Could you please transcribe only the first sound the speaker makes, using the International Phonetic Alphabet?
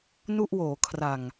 n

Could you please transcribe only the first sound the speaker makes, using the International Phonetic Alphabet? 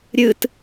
ɾʲ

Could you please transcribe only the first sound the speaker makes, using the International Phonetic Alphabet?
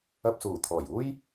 ɐ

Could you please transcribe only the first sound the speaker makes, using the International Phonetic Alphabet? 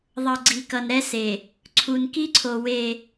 ðˤ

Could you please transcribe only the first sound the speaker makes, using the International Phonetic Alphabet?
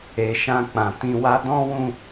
e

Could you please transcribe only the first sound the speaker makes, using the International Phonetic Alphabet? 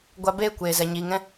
ɡʷ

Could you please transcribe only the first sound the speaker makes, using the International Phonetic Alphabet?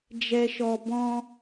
d͡ʒ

